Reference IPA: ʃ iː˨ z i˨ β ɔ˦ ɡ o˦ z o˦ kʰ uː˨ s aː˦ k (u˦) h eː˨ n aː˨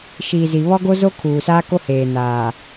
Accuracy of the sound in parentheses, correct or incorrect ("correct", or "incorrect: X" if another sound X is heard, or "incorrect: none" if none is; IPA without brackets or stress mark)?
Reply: incorrect: o˦